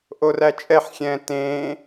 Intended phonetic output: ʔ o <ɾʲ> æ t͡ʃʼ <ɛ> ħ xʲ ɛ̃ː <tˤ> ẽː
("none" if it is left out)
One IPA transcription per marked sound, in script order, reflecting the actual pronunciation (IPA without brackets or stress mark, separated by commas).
r, ɛ, t